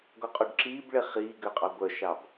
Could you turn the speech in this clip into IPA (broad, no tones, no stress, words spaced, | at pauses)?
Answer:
ɡɔqʼuɖǁiːbɭe χiːɡøqʼɑ ɡʷœʃɑb